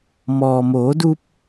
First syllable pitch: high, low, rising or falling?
low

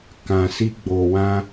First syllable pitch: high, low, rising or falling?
low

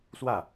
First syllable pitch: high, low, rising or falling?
falling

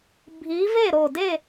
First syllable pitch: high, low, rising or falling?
rising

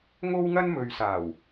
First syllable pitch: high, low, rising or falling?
high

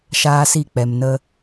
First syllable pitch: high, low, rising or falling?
high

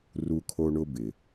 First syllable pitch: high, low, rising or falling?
high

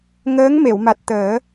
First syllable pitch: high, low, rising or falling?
rising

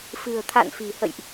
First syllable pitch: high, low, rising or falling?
low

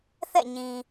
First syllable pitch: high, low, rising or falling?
falling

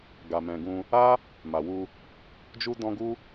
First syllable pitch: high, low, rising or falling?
low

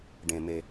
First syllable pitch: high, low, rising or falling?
low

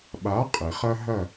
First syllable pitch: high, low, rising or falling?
rising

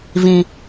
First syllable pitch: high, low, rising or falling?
high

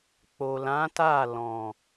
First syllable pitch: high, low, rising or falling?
low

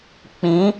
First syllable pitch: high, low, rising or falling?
rising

